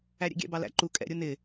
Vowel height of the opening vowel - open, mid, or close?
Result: open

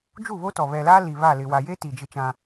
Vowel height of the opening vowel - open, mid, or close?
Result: close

